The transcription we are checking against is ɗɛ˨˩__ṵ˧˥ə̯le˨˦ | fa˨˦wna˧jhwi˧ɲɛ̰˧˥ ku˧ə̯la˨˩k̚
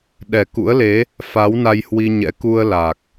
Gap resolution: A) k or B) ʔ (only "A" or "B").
A